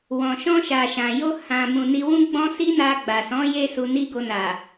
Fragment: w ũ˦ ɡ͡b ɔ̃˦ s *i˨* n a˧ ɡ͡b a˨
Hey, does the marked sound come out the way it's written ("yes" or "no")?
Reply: no